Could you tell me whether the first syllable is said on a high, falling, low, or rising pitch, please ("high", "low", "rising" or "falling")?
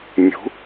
rising